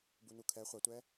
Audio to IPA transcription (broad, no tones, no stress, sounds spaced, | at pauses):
b u n u kʰ ɛ χʷ a tʷ ɛ